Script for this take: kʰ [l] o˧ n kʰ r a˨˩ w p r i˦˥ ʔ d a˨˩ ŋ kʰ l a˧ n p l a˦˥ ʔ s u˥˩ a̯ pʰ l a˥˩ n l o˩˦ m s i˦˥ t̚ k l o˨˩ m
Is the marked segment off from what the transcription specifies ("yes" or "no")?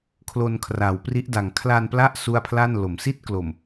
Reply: no